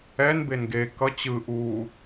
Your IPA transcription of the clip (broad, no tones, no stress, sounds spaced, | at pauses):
ɛ n b e n ɡ e k ʌ t͡ɕ ɯ ʔ u